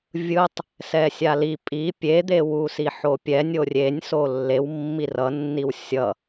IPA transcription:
vʲ ɯ tˤ | s ɛ sʲ a l i pʼ i pʲ e d̪ e w u s i ħ o pʲ ɛ nʲ o rʲ e nʲ s o lː e w mː i r ʌ nː i w sʲ ʌ

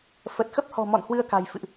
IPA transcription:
f ə˨˩ t̚ x ə˦˥ p̚ h ɔ̤˨˩ m ɔ̰˧˨ n h w ɨ˧ ə̯ k a̤˨˩ j f ɨ̰˧˨ ʔ

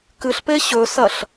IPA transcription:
k ɨ ɬ p e ɕ ɵ s ɐ ɬ

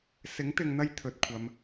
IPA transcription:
s ɪ˨˥ ŋ t̪ ɪ˨ ŋ n̪ ɐ˧ j t̪ʰ ɵ˨ t̚ kʷʰ ɐ˨˧ m

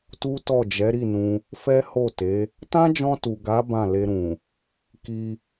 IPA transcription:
t u˦ t ɔ˦˨ d͡ʒ ɛ˨˦ ɾ i˦˨ n ũ˧ | f ɛ˦ h o˦˨ t e˨˦ | t ã˦ d͡ʒ ɔ̃˧ t u˨ ɡ a˨˦ b ã˦˨ l e˧ ɾ ũ˨ | k i˧

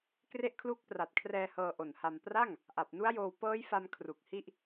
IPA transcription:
k r e˦˥ ʔ kʰ l uː˦˥ k̚ p r a˨˩ t̚ kʰ r ɛː˧ h ɤː˧ ʔ o˨˩ n h a˧ m p r a˥˩ ŋ | ʔ a˨˩ p̚ n u˦˥ a̯ j oː˧ w p ɤː˦˥ j f a˧ m kʰ r u˨˩ k̚ h i˥˩ ʔ

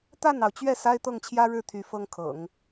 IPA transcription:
t̪ a˥˩ n ɑ˩ ʊ̯ t͡ɕ ɥ ɛ˥˩ s a˥ ɪ̯ t̪ ɤ˥˩ ŋ t͡ɕʰ j ä˥ ɻ ɻ̩˥˩ t̪ʰ y˧˥ f ɤ˥ ŋ kʰ ɤ̰˨˩˦ ŋ

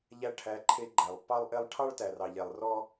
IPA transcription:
ʎ æ˧ ʈʰ æ˨˦ ǃʰ e˧ ɡ͡ǃ æ˨ lˠ pː ɑ˦ lˠ ʔ e˦ lˠ ʈʰ ɑ˦ ɭ t æ˨ r ɑ˨ ʎ ɛ˨ lˠ r ɔ˦

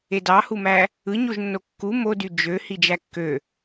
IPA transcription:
e d ɑ h u m æ | ɯ ɲ o ʒ nː o kː u m o d y d͡ʒ ø h i d͡ʒ æ kː ø

